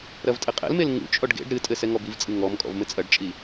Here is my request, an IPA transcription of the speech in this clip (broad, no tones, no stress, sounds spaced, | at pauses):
ɾ ɐ v tʼ ɘ qʼ ɛ̰ l m e l ŋ ṵ t͡ʃʼ ɔ ɖ ɡ ḛ ɖ ɾ ɨ tʼ ɘ s ɛ ŋ ɔ b i v t͡sʼ ɨ ŋ ɔ m kʼ ɔ̰ v m ɘ t͡sʼ ɐ ɖ t͡ʃʼ i